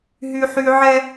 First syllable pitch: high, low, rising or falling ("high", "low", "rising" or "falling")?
high